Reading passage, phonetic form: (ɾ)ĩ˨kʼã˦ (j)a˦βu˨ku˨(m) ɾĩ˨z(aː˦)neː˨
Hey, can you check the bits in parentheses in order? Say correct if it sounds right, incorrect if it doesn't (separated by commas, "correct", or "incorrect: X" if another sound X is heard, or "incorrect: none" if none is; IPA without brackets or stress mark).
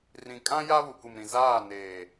incorrect: r, correct, correct, incorrect: aː˦˨